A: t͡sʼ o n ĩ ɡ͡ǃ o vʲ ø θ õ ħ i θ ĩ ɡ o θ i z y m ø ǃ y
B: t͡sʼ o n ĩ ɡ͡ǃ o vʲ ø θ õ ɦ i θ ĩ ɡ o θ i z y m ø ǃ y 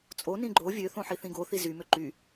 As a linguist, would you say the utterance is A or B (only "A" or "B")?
A